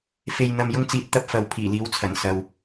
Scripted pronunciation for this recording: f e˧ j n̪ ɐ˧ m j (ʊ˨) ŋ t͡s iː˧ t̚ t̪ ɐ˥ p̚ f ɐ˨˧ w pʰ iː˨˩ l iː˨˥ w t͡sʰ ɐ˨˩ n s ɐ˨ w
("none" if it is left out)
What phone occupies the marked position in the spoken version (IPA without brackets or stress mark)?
ʊ˥